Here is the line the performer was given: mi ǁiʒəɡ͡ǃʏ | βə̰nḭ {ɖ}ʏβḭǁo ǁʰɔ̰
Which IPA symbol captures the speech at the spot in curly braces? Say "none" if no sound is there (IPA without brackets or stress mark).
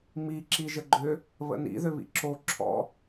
ð